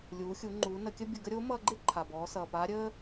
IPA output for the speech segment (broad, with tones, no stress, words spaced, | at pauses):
lʲuː˩˧xʲu˩˧ŋ͡ǃuː˩˧ nə˩˧kʲə˥bʲə˧ɡə˥ ɾʲo˧˥mʌː˧ɡ͡ǃɪ˥ ǃʰa˩bɔː˩˧sʌː˩paː˧˥ ɾʲəː˥